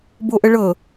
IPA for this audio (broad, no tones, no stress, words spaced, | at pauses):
boʔəɭɤ